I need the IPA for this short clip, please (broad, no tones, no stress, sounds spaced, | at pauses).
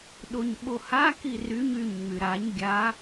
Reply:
ɗ o ɲ ɓ o h a k i r y ɲ y ɲ ŋ͡m y ɾ a ɲ ɡʲ a